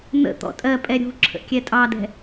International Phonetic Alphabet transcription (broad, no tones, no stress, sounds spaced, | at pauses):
n̪ ə̰ t̪ ɔ̰ tʼ ɜ pʼ ɛ ɾʲ ṳ ǁʰ ə̰ kʲ ɛ tʼ ɑ d ɛ̤